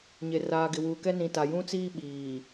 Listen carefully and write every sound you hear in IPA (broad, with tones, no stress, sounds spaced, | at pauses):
ɲ e˨ r aː˨ ɡ ɪ˨ w uː˨ k ɛ˦ n ĩ˨ t a˨ j ũ˦ t͡s iː˦ ɓ iː˨